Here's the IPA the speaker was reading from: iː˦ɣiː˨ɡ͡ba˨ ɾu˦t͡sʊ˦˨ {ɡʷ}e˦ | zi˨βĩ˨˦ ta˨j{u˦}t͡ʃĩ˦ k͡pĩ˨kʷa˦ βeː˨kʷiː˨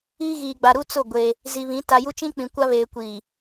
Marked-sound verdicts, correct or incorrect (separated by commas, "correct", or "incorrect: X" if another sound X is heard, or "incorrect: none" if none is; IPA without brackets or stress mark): correct, correct